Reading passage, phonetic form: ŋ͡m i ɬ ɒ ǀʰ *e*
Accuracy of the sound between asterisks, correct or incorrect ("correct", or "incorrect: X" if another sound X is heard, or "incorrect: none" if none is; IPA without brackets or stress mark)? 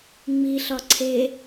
correct